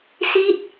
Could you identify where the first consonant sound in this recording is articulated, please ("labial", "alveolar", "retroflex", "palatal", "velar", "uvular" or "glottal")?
alveolar